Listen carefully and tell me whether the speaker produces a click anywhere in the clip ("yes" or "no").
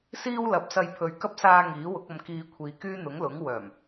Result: no